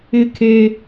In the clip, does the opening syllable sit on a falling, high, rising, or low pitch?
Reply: high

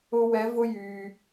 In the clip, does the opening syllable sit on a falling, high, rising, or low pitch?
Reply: high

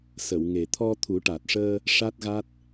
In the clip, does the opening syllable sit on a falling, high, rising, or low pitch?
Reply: low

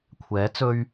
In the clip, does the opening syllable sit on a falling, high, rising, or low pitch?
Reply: rising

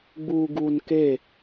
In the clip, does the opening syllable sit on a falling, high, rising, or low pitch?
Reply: low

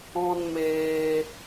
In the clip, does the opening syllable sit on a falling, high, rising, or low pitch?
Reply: high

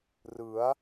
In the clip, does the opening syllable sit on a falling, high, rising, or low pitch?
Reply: rising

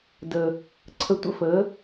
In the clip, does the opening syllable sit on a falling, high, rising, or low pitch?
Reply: low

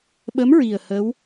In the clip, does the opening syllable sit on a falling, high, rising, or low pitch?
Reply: rising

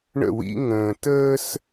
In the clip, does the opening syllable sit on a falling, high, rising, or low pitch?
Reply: falling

